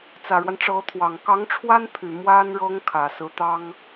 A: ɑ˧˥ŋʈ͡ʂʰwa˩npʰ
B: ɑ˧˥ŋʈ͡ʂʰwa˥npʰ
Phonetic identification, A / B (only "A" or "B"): B